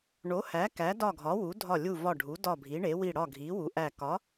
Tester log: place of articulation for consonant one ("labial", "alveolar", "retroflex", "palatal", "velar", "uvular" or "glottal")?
retroflex